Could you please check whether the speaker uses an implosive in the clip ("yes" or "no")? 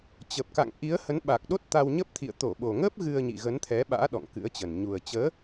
yes